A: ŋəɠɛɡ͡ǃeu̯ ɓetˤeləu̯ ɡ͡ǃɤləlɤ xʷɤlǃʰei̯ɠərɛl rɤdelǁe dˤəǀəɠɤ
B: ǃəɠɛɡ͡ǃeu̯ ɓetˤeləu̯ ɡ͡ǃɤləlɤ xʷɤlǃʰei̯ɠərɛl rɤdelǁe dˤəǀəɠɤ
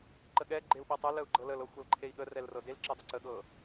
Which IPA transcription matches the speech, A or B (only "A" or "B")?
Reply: B